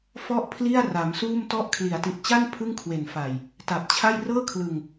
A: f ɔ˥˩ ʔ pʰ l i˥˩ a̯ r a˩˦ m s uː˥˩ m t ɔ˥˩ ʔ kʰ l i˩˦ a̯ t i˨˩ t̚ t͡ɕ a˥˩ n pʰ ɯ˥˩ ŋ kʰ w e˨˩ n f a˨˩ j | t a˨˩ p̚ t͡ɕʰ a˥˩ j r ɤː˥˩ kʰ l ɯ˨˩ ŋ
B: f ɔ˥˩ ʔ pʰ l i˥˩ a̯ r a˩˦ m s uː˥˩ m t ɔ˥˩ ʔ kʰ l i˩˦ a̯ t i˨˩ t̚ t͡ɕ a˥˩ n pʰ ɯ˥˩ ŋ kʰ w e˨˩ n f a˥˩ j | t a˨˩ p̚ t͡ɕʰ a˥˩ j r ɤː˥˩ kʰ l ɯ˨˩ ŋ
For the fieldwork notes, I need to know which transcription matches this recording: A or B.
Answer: A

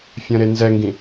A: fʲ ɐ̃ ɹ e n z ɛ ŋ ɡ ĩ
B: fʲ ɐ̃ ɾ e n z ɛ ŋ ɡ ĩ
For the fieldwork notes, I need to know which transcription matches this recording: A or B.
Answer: B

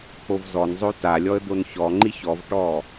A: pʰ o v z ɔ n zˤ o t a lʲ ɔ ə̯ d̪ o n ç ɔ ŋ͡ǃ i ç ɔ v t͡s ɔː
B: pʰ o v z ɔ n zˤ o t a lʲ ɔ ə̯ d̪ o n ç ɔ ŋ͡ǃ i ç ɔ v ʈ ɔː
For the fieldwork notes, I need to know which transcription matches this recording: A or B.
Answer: B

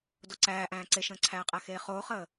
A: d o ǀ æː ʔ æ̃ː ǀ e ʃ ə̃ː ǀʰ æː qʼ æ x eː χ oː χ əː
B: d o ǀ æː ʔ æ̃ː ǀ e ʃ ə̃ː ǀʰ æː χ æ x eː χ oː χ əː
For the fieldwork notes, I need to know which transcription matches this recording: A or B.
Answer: A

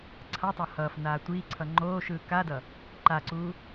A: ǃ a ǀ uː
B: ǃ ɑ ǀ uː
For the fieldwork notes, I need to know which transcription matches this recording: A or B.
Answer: A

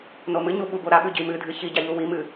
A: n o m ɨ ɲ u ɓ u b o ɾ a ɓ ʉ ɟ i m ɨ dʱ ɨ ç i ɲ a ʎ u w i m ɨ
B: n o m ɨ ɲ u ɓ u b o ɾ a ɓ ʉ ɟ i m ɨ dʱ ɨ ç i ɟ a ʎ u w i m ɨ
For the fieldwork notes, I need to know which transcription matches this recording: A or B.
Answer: B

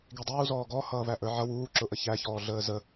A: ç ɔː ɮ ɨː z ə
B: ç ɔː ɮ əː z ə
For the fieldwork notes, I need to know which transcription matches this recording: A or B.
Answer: B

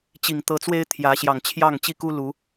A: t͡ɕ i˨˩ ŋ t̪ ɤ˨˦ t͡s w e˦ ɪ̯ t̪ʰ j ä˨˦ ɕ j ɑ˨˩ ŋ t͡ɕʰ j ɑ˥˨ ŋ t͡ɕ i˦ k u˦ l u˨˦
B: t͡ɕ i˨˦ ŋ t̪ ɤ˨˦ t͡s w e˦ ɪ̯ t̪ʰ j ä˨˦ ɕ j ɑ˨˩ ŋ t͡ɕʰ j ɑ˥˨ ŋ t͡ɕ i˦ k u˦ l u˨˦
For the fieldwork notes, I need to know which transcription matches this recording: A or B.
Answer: A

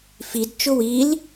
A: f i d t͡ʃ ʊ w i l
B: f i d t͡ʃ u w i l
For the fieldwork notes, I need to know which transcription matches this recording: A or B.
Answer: A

